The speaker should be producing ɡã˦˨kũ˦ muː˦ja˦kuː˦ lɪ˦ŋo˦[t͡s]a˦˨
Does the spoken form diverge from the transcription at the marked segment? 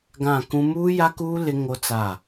no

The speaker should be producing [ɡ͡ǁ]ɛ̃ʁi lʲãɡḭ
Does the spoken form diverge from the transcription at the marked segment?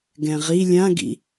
yes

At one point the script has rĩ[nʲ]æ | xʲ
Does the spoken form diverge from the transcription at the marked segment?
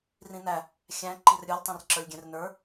yes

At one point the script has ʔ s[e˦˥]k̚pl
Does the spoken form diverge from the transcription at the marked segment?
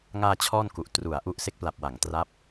no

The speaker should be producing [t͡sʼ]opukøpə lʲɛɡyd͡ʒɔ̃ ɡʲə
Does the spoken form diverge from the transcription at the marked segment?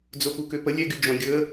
yes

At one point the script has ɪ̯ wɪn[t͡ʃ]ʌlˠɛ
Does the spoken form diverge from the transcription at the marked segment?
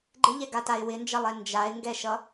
yes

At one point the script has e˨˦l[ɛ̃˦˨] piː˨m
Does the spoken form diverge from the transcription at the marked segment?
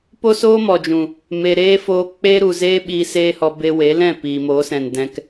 no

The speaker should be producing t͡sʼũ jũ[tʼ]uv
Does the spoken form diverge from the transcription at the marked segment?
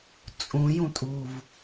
no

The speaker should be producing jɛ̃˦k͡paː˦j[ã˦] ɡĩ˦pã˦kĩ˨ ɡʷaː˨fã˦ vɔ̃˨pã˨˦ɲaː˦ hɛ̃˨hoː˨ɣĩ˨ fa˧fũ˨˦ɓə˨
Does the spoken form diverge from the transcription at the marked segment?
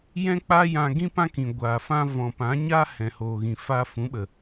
yes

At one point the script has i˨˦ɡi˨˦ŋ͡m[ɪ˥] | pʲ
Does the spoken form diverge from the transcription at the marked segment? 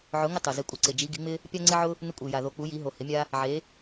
no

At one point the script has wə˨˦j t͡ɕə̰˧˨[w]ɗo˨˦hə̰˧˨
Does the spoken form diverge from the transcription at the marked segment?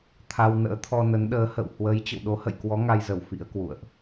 no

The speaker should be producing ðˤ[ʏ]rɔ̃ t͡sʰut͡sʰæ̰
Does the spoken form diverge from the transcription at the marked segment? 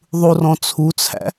yes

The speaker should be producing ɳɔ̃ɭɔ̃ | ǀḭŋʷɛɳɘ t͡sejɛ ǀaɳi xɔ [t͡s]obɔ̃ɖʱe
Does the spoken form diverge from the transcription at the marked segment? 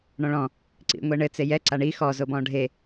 yes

